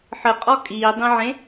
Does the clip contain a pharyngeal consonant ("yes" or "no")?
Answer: yes